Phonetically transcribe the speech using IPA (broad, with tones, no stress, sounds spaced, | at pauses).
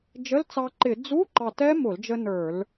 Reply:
d͡ʒ ə˧˥˧ l t͡s ɑ˧ ǃ ɪ˧˩˧ d͡z u˧˥˧ ǃ ɑ˧˩ t ɛ˦˥ m ʊ˧˩˧ l d͡ʒ ə˧ n ə˞˧˩˧ l